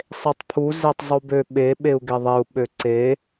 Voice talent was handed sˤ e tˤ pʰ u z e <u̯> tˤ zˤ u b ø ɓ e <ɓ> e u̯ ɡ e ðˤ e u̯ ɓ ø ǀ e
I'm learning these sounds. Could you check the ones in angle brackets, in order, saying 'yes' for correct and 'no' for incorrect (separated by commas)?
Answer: no, yes